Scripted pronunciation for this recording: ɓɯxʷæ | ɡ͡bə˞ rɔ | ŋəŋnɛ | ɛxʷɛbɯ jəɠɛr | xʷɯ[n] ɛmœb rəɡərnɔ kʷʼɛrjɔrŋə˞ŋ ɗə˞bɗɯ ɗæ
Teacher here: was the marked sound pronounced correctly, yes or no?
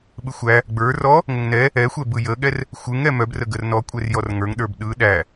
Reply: no